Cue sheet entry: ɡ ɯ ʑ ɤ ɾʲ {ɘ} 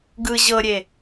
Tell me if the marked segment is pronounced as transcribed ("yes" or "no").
no